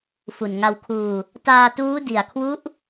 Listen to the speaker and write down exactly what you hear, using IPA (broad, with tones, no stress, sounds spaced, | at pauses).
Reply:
f u˨˩ n ŋ a˧ w kʰ uː˧ | t aː˧ t uː˦˥ d i˨˩ a̯ kʰ w u˦˥ ʔ